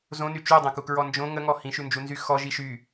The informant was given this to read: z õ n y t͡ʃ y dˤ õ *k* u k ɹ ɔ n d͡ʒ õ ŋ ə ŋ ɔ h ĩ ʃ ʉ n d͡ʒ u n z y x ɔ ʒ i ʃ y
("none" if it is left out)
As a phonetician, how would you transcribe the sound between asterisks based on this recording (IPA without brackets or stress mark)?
k